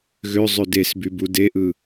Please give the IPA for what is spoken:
ɣ ø zˤ ø d e s b y b u d e ʔ ɯ

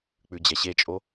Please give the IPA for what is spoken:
k͡p ʉ d͡ʑ ɛ ɕ e t͡ʃʼ o

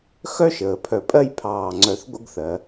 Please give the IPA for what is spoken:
x œ˥ ʃ əː˩˧ pʰ œ˧˩ pʼ ɜ˥˧ j pʰ ɑː˧˩ ŋ͡ǀ œ˧ θ ɡʷ ə̰˥˧ ɡ θ ɜ˩˧

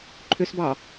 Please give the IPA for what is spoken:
ǃʰ ʏ s b ɑ

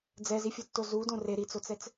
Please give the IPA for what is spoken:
d͡z ɛ z i fʲ u tː o z u d õ r e ɾ i t͡s o t͡s ɛ t͡s

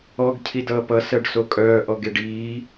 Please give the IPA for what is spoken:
ɔ ɡ cʰ i d ʌː p ʌ s ɜ ɖ s o kʼ œː ʔ ɔ ɡ e ɖ iː

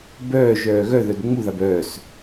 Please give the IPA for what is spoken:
b œː ʒ œː ɣ œ ð œ d ŋ͡m u ð a b œː s

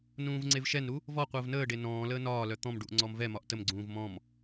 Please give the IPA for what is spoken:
n ũː v ŋ͡ǀ e v ʃ ɛ n ɾ u | v ɔ qʷ əː v n əː ɖ e n ɔ̃ː l əː n ɒː l œ t̪ ɔ̃ m ɖ u ʔ ŋ͡ǀ ɔ m v ɛ m ɒ ʔ t ə m ɡ͡ǀ ũː v m ɔ̃ m

